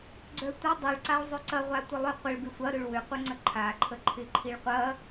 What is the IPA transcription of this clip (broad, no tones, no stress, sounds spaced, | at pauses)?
ɡ͡ǀ œ tʷ ɐ dˤ u ɭ ǀ a ɭ zˤ œ ǀ ɐ ʁʷ a tʷ ə lˠ ʏ qʷ ə ɭ b ɪ sʷ ɐ ɾ ʏ ɭ w ʏ qʷ ə ŋ͡ǀ ə ǃʰ a ǃʰ ə ǃʰ ɪ ǃʰ i ɭ qʷ ɐ